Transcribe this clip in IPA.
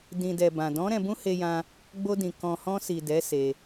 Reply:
dĩ˨dɛ˨ bã˨ dɔ̃˨˦ ɾɛ̃˧bũ˦he˧jã˧ | ɡ͡bo˧dĩ˨ kɔ̃˨hɔ̃˧ si˨dɛ˨˦ se˧

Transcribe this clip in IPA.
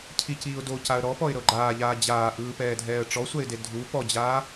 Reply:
cʰiciːʊ̯ docaə̯ ɾɔpɔɪ̯ɾɤ ɡ͡ǃaːʎaː d͡ʑaːʔɯːpɛːdʱɛːə̯ ʈ͡ʂɔsʷɛɪ̯de dʱu pɔd͡ʑaː

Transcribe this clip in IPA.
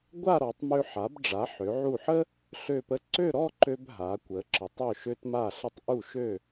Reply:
ɡʷa˥˧ɾɔ˩˧tˤmø˧ ħa˩˧bɖ͡ʐa˩˧ ħø˩˧ʕu˧˩ħə˥ | ɬø˧˩pə˧ ǀø˥˧ɾɔ˥˧ǃø˧b ɦa˩˧kʷə˩˧ǁə˩˧tˤ ø˧˩ʃø˧tma˧˩ɬə˧tˤ ʔu˧˩ʃø˧˩

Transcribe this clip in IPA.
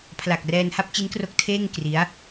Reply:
pʰla˨˩k̚ rɛː˧nha˥˩p̚ t͡ɕi˦˥nkro˦˥k̚ tʰeː˥˩ŋ kri˦˥a̯

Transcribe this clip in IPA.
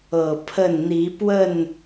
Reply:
ɤ˨˩ pʰə˥˨n n̪i˨˦pwə˥˨n

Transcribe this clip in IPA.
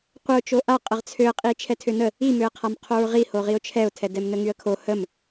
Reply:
qʷəʊ̯ t͡ʃoʔaqʼəʁ t͡sʰøə̯qʼi t͡ʃʰɛtʰønə | imøə̯qʰam qʰoɹʁihoʁiʊ̯ t͡ʃʰɛʊ̯tʰɛ dɛmnəŋyə̯kʰo həm

